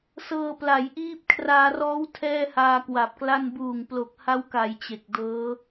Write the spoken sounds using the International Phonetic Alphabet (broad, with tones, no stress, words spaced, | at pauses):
sɤː˧pla˩˦jʔiː˦˥p̚ kʰraː˧rɔː˦˥w tʰɛː˥˩haː˧kwa˨˩p̚kla˥˩n buː˨˩ŋ plo˨˩k̚ha˦˥wka˩˦j t͡ɕe˨˩k̚dɤː˦˥